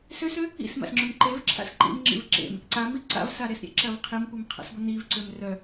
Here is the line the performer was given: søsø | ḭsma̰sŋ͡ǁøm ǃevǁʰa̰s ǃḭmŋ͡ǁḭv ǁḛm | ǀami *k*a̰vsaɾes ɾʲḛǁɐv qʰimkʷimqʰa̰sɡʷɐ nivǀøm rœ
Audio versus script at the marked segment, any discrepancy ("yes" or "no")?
yes